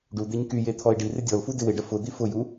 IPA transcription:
ɖ u d̪ e ɲ k y j e t̪ʰ ɔ ɪ̯ ɖ i r ɪ dʲ ɔ l f u d ɪ w ɪ ɖ ə f ʊ d̪ i f ʊ j u

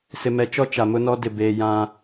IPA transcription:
s ɪ˨ m ɛ˨ t͡ʃ ɔ˦ t͡ʃ a˨ m ʊ˦ n ɔ˦ d ɪ˨ b eː˨ j ã˦

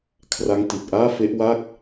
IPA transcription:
kʰ r a˦˥ ŋ t i˨˩ t̚ ʔ aː˥˩ f e˦˥ ʔ w a˥˩ k̚

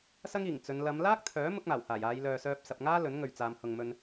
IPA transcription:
s ɐ˥ ŋ iː˨˩ ŋ t͡s ɵ˨˧ n l ɐ˨˧ m l aː˥ k̚ t̪ʰ œː˨˥ m ʊ˥ k̚ m aː˨˩ w h aː˨˩ j aː˨˧ j l œː˨ s œː˧ p̚ s ɐ˨ p̚ ŋ aː˥ l ɵ˨˥ n ŋ ɵ˨ ɥ t͡s aː˨˧ m h ʊ˨ ŋ m ɵ˧ n

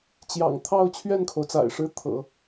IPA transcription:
t͡ɕ j ɑ̰˨˩ ŋ t̪ʰ ɑ˥˧ ʊ̯ t͡ɕʰ ɥ ɛ˥˩ n kʰ o˩ ʊ̯ t͡s a̰˨˩ ɪ̯ ʂ ɻ̩˥ t̪ʰ ɤ̰˨˩˦

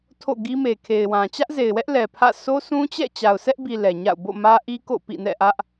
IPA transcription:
tʰ o̰˦˨ ɡ i˦ m e˨ kʰ e˨ ɪ̯ w ã˨ t͡ɕ ä˦ ʔ z e˨ ɪ̯ w ɛ˦ ʔ l ɛ˨ pʰ ä̰˦˨ s o˦ sʰ ũ˦ t͡ɕ ɛ̰˦˨ t͡ɕ a˨ ʊ̯ s ɛ˦ ʔ b i˨ l ɛ˨ ɲ a̰˦˨ ʊ̯ b o̰˦˨ m ä˦ ʔ i˦ k o̰˦˨ p ḭ˦˨ n ɛ̰˦˨ ʔ ä˦ ʔ

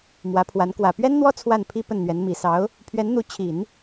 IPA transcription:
m w ä˧˥ pʰ w a˧˥ n k w ä˨˩ p ɥ ɛ˥ n n̪ w ɔ˥ t͡sʰ w a˥˩ n pʰ i˥ p ə˥˩ n n̪ ɥ ɛ˧˥ n m i˨˩ s ɑ˧˥ ʊ̯ | pʰ ɥ ɛ˧˥ n n̪ u˧˥ t͡ɕʰ i˨˩˦ n

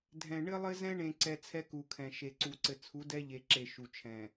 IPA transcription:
dʱ ɛ̃˨ ɳ ɘ˦ lˠ ɘ˦ z ɛ̃˦ ɳ ẽ˨ ǀ ɛ˨ t͡sʰ ɛ˦ k u˨ kʰ ɛ̃˨ ʃ e˨ ǀ u˨ ǀ ɘ˨ t͡sʰ u˨˦ d ɛ˦ ʎ e˨ ǁ e˨ ʃ u˨ t͡ʃʰ ɛ̃˨

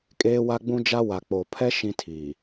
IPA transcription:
kʼ eː˦ w a˦ ɡ͡b ũ˦ d͡ʒ a˦ w a˨ k͡p o˨ pʰ ɛ˦ ʃ ĩ˦ tʰ iː˨

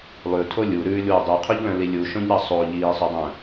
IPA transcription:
lˠ ʉ tʰ o lʲ u ɾ ʉː lʲ w ø dˤ u qʰ u ʎ l œ̃ l i lʲ u ʃ õ ʎ ɾ ɑ sˤ o ʎ iː sˤ ø dˤ œ̃

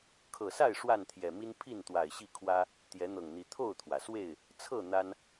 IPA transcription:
kʰ ɤ˨˩ s a˥˨ ɪ̯ ʂ w a˥˨ n t̪ʰ j ɛ˨˩ m i˦ n pʰ i˥˨ n t̪ w a˨˩ ɪ̯ ɕ i˥˨ kʰ w ä˦ | t̪ j ɛ˨˦ n̪ ɤ˨˩ ŋ n̪ i˨˦ t̪ʰ o˥˨ ʊ̯ t̪ʰ w ä˩ s w e˥˨ ɪ̯ | t͡sʰ ɤ˥˨ n̪ a˦ n

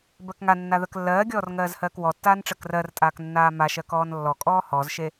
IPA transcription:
b ɜ k ŋ a nː a ð ɜ k lː ɜː ɡʲ ɔː r ŋ ɜː z h ɜː k w ɔ tː aː n ʈ͡ʂ ɜ k r ɜ r tʼ aː k nː aː m a ʃ ɜ k ɔː n lː ɔ kʼ ɔː h ɔ z ʃ e

